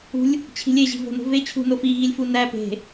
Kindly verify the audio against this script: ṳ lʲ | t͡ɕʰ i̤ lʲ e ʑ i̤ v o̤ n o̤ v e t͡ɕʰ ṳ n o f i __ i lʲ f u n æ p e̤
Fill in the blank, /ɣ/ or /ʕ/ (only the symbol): ɣ